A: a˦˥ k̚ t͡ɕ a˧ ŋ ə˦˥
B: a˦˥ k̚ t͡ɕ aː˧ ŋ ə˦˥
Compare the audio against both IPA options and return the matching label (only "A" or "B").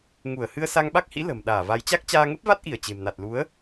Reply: B